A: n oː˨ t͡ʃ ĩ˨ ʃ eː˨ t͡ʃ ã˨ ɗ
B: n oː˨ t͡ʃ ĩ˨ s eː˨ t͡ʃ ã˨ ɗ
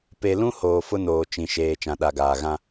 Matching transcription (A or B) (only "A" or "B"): A